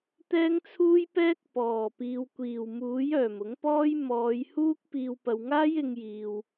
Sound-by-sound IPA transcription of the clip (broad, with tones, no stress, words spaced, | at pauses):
t̪ɛː˥ŋt͡sʰuː˥jpɛː˥k̚ pɔː˨˩ piː˨wkʷiː˨˩wmuː˨˥j œː˨˩mʊ˨˥ŋpɔː˥j mɔː˨˧jhuː˥k̚ piː˨wpɐ˨wŋaː˥j ɪ˧ŋjiː˨w